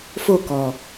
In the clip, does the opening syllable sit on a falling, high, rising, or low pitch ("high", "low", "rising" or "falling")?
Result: falling